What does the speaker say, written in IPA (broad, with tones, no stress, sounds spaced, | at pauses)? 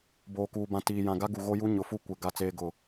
b oː˨ k uː˨ b ã˨ t iː˨ j ã˨ ɡ a˦ ɡ u˨ ɣ o˦ j u˦ ɲ ʊ˨ f u˦ kʷ ɪ˨ ɡ a˦ t͡s eː˦ ɡ ʊ˦˨